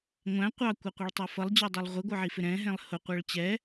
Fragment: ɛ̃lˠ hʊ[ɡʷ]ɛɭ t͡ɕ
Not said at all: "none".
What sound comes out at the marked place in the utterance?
qʷ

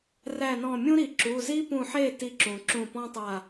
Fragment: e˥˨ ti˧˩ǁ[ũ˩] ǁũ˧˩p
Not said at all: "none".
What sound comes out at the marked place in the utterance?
ũ˩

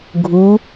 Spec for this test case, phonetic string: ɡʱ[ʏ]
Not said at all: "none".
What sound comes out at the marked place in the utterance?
u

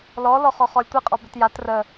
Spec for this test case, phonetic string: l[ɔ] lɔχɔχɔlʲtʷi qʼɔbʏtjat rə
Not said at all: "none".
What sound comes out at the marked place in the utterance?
ɔ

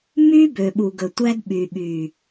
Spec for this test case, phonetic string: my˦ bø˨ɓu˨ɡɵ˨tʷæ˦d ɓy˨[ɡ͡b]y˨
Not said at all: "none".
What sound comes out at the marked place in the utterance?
ɓ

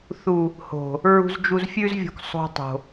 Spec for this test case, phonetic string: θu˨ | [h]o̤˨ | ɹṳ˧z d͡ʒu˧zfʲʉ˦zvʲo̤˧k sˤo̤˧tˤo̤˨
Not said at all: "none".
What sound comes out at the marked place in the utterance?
h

